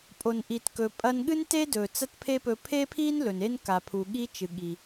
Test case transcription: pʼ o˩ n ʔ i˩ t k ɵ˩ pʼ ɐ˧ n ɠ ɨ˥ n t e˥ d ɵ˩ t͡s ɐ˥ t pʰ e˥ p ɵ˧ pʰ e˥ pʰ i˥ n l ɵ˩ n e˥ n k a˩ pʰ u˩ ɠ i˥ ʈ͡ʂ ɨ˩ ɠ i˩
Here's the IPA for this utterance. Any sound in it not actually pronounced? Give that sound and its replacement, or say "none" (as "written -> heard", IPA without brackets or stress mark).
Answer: ʈ͡ʂ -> t͡ʃ